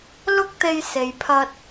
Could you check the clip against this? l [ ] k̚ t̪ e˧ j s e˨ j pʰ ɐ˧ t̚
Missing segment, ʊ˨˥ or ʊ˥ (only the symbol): ʊ˥